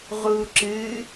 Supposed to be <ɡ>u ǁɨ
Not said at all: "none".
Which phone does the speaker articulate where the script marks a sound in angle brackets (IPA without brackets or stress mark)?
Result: ʁ